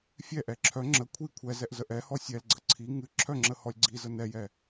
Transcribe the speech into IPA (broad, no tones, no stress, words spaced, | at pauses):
fʲɛʔɛ ǁʰœ ŋ͡ǁə kʷʰi kʷʰɛzɛʔ zəʔɛhɔ sʲɛlɡ͡ǀə ǀʰi ŋɨ ǁʰœŋ͡ǁə hɔlʲɡ͡ǀizə nɛjɛ